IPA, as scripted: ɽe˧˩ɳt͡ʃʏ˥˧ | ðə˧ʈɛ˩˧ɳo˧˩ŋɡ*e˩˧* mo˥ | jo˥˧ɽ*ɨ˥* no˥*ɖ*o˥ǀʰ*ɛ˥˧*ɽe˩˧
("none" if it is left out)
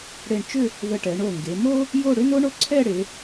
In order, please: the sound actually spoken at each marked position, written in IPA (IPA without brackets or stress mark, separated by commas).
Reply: e˩˧, ʏ˥, ɳ, ɛ˥˧